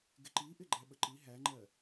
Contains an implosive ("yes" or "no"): yes